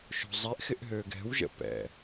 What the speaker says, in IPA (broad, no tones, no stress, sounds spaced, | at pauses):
ʃ o̤ zˤ e ʔ x ɪ ʔ ɦ ø ɡ ɛ̤ w ʒ ə̰ p ɛ̰